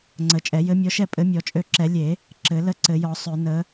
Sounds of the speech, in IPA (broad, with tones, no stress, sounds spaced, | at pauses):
ŋ͡ǀ ə˨˩˦ t͡ʃʼ ɛ˨˩˦ j ɘ˨˥ mʲ ɔ˨˥ ʃ ɛ˥˨ pʼ ɘ˨˥ mʲ ɔ˨˩˦ t͡ʃʼ ø˨˥ ǁ ɛ˨˩˦ lʲ e˨˩˦ | ǁ ɘ˨˩˦ l ə˥˨ ǀ ɘ˨˩˦ j ɔ˨˩˦ sˤ ø˨˩˦ n ə˨˥